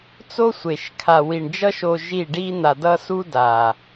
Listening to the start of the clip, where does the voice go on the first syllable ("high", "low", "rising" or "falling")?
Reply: high